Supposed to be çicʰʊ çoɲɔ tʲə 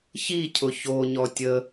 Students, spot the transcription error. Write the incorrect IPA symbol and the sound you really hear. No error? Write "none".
none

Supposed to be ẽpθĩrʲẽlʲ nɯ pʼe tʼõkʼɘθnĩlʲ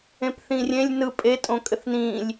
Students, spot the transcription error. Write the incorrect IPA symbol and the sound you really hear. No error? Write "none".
none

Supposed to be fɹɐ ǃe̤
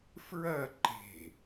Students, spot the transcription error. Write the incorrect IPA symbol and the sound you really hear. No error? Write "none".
none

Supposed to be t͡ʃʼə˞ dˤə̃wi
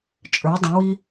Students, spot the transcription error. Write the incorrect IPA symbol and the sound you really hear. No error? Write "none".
none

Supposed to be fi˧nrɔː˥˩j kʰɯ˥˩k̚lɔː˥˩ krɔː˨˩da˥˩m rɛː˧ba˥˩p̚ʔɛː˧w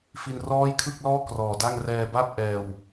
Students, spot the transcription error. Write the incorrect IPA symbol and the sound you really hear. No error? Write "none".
m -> ŋ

